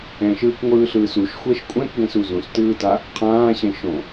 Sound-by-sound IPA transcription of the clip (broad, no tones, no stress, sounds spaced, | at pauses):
ɛ̃ ʃ ɯː k ŋʷ ɯː ɬ ɯː s u ʃ xʷ ɛ ʃ kʷʼ ɛ̃ k ɡ ɛ̃ s u z ũ s t ɯː t a | qʰ ãː ɕ ɛ̃ ʃ õ